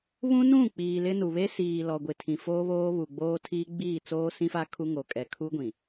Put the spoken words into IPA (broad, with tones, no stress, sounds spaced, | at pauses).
β ũ˦ n ũ˦˨ k͡p iː˨ l ɪ˦ n u˨ β e˦ s iː˨ l ɔ˨ ɡʷ ɪ˨ tʰ ĩ˨ f oː˦ β oː˦ β u˨ ɡ͡b oː˦ tʰ iː˦ ɡ͡b iː˦˨ t͡s oː˦ s ĩ˦ f a˦ kʰ u˦ ŋ o˨ kʼ ɛ˨ kʰ u˦ ɡʷ ĩ˨